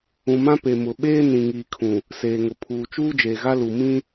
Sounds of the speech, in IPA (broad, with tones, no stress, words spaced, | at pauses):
ũ˨mã˦pe˨mʊ˨ ɓeː˦nĩ˨ ŋiː˨kʰũ˨ | seː˨ŋʊ˨ pʰuː˨t͡ʃuː˦ d͡ʒeː˨ɣa˦lu˨ mĩ˦